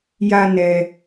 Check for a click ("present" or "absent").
absent